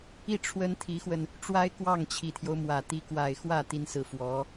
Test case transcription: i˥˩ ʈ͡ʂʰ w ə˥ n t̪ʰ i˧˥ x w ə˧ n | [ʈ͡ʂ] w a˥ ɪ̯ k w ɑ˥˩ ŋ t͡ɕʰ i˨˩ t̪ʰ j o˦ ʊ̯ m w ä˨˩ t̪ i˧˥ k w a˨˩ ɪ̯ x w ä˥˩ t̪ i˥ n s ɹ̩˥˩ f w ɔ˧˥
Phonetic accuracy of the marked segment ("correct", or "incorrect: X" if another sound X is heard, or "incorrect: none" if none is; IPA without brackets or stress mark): correct